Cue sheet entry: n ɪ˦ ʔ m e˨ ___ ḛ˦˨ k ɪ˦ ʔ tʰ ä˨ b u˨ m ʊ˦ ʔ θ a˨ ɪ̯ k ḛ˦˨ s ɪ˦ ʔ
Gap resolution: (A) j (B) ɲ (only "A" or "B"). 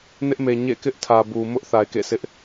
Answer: B